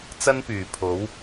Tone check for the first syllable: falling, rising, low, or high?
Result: high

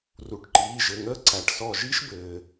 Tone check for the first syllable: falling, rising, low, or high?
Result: rising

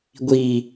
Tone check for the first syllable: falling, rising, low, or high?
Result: low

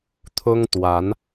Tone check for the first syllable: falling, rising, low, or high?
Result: high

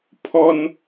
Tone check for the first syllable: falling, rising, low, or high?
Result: high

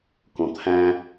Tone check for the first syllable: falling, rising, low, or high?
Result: low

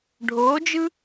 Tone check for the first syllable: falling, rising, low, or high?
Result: rising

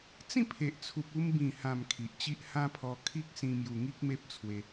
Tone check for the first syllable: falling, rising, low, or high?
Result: falling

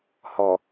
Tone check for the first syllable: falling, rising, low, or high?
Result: low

